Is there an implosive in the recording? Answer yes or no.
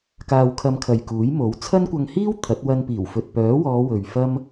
no